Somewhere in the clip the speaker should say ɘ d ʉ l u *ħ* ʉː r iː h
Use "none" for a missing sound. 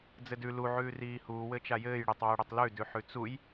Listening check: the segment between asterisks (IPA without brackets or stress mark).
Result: ʕ